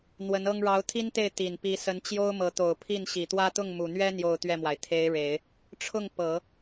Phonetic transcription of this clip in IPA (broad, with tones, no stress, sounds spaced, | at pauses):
n̪ w ə˧˥ n ɤ˥ ŋ ɻ ɑ˧˥ ʊ̯ t̪ʰ i˥ n t̪ e˥˩ ɪ̯ t̪ i˨˩ n p i˧˥ s ə˧˥ n t͡ɕ j o˥ ʊ̯ m ɤ˧˥ t̪ o˨˩ ʊ̯ pʰ i˥˩ n ɕ i˨˩ t̪ w ä˥ t̪ ʊ˥˩ ŋ m u˨˩ n̪ ɥ ɛ˥ n̪ j o˥˧ ʊ̯ t̪ ɥ ɛ˥˩ m w a˩ ɪ̯ t̪ʰ e˧˥ ɪ̯ ɻ e˨˩˦ ɪ̯ | ʈ͡ʂʰ ʊ˥˩ ŋ p ɤ˨˩˦